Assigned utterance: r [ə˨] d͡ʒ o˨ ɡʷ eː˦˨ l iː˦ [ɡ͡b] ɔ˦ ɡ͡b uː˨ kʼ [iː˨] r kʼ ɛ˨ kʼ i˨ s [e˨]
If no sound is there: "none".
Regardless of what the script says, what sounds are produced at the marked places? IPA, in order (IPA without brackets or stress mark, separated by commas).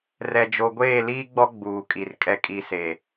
ɛ˨, ɡ͡b, i˨, e˨